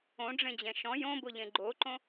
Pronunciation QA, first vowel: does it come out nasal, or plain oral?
nasal